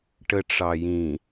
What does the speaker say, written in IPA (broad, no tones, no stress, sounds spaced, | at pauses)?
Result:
ʈ ə ʈ͡ʂ ɑ j ĩ